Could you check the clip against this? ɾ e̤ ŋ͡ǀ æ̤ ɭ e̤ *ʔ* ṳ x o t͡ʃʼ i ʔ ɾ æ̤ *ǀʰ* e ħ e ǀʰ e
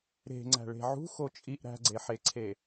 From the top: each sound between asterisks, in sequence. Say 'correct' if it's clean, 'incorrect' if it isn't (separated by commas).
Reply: incorrect, incorrect